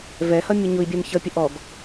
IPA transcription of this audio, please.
v ɛ h ʌ mʲ ʊ ɲ ʊ i̯ bʲ ɛ m ç ʌ pʲ ə ʔ ɔ ɡ

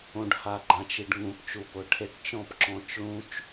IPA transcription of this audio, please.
õ˨ ɖ h a˨ ɡ͡ǃ ã˨ t͡ʃ i˨ ɖ ŋ ũ˨˩˦ p t͡ʃ u˨ p ʊ˨˩˦ ʈʰ e˨ ʈ t͡ʃ ɔ̃˥˨ p ǁ ɔ̃˨˩˦ t͡ʃ ɭ ũ˦˥ t͡ʃ

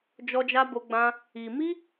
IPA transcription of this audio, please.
d͡ʒ ɔ˦ d͡ʒ a˦ b o˦ ɡ͡b ã˦ | i˧ m i˦

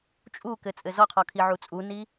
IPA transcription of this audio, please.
t͡ʃʼ u k ɘ t͡sʼ ɘ z ɔ qʰ ɔ kʰ i ʕ u t͡sʼ u n i

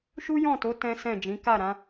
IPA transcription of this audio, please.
ʃ u˦ j ɔ̃˦˨ t o˨˦ t ɛ̃˦ s ɛ̃˦˨ d͡ʒ ĩ˨˦ k a˦˨ ɾ ã˨˦

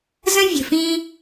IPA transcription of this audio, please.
z ə̃˦ vʲ ə̤˨ f ĩ˧

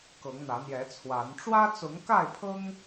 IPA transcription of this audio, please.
k ɤ˨˦ ŋ n̪ ä˨˦ n̪ j ɛ˨˦ t͡sʰ w a˨˦ n ʈ͡ʂ w ä˦ t͡s ʊ˨˦ ŋ k a˥˨ ɪ̯ pʰ ɤ˦ ŋ

